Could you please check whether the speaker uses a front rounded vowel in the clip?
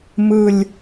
no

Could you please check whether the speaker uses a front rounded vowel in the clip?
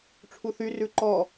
yes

